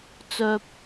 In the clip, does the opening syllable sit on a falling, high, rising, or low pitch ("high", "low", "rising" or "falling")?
low